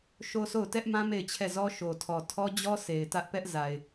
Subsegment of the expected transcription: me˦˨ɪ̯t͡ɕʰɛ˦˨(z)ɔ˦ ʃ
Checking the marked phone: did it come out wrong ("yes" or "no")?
no